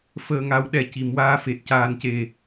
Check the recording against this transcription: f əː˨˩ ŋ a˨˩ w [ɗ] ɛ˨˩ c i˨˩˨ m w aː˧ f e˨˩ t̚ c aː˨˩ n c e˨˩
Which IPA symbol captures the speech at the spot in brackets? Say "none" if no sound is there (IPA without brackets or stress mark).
ɗ